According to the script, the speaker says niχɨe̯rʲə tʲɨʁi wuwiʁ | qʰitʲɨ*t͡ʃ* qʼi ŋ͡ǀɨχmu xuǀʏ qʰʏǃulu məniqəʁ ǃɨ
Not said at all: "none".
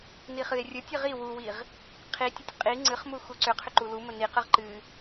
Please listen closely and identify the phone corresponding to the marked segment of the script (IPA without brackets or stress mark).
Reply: tʲ